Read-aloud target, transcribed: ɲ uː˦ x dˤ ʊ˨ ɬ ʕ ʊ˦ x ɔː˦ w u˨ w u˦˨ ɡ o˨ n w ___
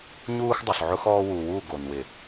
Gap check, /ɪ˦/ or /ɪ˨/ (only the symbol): ɪ˨